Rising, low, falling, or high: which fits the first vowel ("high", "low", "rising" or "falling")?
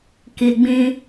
low